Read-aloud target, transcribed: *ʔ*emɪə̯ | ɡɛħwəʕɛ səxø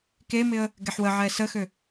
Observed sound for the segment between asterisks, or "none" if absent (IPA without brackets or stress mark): k